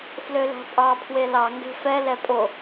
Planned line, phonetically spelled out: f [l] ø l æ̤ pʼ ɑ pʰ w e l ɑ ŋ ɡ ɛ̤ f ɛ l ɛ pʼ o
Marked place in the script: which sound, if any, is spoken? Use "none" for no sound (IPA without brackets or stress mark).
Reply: l